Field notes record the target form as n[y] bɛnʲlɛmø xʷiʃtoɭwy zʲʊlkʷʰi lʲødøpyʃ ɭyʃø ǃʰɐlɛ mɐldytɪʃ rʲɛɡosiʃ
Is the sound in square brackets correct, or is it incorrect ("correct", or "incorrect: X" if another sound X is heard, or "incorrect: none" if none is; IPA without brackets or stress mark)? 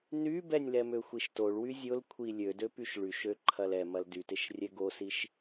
correct